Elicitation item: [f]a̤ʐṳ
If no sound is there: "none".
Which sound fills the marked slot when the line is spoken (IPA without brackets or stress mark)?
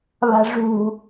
β